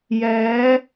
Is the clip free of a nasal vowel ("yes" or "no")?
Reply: yes